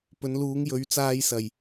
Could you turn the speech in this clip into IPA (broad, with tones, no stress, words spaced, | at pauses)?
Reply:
pɵ˨˧nluː˨˧ŋjɵ˨˧ɥ t͡saː˧j sɐ˨j